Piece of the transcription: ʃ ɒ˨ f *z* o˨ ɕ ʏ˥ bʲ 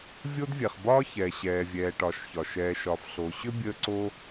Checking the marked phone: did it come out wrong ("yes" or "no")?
yes